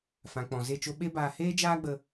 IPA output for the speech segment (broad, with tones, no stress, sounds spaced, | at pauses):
f ã˨ k͡p ɔ̃˨ z e˦˨ t͡ʃ o˦ ɓ e˦ b aː˧ h eː˦ d͡ʒ aː˦ ɡ͡b ə˧